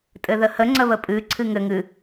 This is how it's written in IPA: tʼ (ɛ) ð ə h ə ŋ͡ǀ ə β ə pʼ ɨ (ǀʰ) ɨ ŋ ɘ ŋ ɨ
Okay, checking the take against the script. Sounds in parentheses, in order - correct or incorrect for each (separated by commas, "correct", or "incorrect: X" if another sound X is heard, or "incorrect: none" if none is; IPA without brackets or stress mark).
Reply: incorrect: ɘ, correct